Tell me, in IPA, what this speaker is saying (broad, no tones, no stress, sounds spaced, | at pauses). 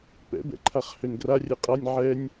p ɛ̰ b ɛ̰ ǃʰ a χ h ø n ɡ r a rʲ ɛ qʼ a nʲ ʕ ɛ nʲ